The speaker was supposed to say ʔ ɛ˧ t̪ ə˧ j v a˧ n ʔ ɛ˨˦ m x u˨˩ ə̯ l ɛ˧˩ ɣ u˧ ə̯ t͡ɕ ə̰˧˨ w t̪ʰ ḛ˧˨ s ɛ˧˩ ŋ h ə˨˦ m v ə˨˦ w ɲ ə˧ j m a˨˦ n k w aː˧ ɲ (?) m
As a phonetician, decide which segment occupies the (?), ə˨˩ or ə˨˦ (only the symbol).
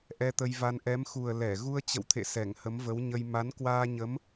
ə˨˦